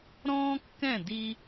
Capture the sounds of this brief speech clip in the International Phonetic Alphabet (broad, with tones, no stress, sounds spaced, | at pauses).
ɾ ɔ̃ː˥ kː ɛ̃˥˩ d i˥